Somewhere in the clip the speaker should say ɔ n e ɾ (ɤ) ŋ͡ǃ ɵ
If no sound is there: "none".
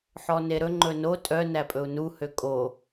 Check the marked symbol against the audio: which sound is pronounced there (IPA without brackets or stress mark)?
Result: ɵ